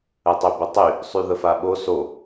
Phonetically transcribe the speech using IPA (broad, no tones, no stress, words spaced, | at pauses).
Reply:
ətˤybətˤy | sˤyðəfaɓo so